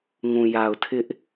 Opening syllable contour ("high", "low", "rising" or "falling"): low